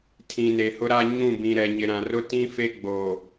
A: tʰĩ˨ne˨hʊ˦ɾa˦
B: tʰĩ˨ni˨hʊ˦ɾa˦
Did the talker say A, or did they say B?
A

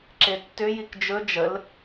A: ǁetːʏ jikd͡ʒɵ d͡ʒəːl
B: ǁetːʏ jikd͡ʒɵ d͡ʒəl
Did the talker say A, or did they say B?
B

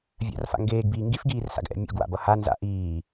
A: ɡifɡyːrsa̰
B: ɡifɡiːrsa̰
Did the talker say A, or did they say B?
B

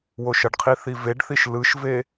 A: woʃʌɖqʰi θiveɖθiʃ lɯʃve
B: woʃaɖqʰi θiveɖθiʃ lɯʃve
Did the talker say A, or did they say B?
A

